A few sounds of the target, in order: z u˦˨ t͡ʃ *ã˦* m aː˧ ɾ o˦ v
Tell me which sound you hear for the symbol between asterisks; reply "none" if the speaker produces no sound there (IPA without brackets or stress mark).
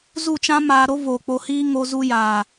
ã˦